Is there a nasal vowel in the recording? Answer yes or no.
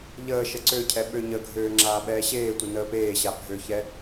no